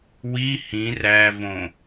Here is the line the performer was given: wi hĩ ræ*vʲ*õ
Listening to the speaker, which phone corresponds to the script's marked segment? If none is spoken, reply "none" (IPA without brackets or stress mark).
v